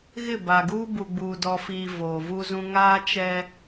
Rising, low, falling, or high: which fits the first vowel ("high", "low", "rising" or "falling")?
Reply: falling